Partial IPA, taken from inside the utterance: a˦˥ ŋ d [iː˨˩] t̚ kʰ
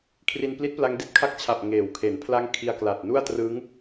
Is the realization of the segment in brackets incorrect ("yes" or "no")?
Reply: yes